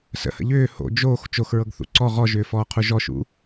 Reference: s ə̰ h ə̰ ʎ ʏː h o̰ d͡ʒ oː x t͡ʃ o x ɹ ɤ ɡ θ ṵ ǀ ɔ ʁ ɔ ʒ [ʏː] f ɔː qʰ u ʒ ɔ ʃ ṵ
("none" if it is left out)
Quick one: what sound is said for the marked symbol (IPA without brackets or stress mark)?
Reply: ʏː